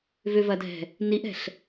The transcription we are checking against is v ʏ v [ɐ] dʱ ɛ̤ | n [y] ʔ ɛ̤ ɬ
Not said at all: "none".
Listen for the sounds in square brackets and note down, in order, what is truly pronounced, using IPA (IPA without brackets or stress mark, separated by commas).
ɐ, i